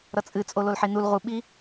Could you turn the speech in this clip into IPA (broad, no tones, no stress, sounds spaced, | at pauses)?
ɾ ʌ t͡sʼ ɨ t͡sʼ o l o l ħ i n u l ʁ u ɓ i